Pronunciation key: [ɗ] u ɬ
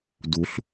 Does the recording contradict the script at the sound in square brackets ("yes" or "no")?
yes